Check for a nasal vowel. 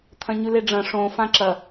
present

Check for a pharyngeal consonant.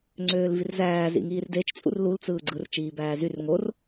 absent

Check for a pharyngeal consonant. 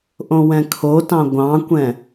absent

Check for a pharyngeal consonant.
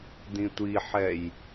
present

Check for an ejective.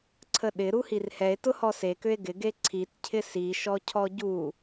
absent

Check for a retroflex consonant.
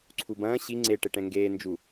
present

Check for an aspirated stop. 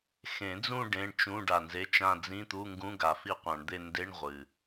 absent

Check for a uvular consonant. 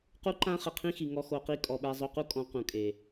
present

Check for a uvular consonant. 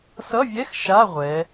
present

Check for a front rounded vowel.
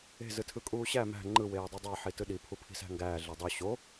present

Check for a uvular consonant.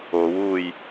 absent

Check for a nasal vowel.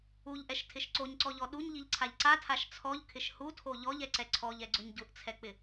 absent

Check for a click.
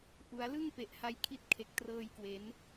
absent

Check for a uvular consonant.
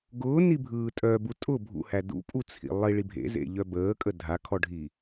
absent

